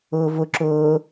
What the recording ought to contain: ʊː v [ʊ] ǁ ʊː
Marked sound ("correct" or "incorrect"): correct